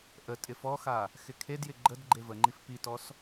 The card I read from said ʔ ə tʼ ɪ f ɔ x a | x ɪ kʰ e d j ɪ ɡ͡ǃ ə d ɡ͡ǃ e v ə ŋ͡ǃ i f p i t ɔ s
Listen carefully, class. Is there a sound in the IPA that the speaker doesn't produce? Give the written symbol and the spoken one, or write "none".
none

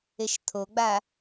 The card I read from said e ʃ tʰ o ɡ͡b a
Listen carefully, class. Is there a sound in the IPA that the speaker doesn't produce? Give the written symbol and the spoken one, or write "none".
none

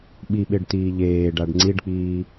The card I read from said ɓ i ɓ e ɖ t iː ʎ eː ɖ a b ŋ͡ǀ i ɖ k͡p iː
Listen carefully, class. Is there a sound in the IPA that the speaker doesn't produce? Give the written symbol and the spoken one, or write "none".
b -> ɖ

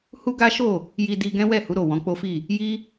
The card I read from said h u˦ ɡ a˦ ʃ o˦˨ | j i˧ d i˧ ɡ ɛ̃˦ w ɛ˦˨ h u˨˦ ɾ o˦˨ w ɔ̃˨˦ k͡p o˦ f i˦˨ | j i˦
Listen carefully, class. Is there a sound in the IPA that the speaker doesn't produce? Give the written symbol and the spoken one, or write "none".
none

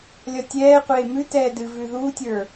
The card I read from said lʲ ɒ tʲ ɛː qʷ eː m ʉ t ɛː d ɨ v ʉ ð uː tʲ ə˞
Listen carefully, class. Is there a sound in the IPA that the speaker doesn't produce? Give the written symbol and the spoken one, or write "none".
none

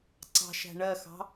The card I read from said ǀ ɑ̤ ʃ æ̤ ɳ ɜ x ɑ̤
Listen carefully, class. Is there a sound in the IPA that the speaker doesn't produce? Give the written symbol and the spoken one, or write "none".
none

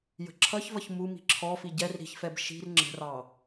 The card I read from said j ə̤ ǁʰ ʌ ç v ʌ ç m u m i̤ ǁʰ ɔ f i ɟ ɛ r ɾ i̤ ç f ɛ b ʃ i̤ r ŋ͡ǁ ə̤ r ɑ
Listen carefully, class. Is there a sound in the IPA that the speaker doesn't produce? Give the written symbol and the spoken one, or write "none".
none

